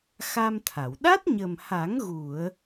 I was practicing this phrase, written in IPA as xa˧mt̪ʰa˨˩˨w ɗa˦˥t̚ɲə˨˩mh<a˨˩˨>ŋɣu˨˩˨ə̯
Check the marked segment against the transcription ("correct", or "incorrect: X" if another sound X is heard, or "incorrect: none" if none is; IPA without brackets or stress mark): incorrect: a˨˩˦